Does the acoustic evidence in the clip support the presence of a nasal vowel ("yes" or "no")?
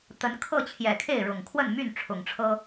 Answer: no